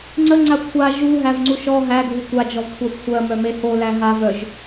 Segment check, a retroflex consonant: absent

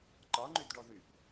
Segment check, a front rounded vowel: present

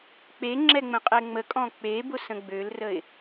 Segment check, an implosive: absent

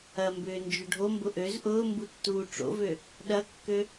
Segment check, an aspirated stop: absent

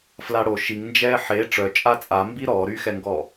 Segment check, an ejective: present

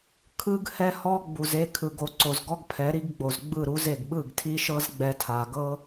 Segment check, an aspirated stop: present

